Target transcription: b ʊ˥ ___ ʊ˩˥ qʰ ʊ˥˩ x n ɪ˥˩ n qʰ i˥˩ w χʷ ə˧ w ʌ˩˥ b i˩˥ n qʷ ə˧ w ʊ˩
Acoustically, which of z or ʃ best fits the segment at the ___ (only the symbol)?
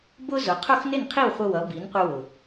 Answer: z